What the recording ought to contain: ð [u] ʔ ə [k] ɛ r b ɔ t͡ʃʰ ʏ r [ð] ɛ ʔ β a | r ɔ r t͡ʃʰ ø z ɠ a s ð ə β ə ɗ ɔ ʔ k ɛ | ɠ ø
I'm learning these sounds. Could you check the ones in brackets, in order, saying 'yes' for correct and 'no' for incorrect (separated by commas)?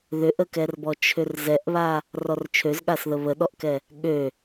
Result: no, yes, no